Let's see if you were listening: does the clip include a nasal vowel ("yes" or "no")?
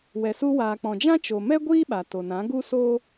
yes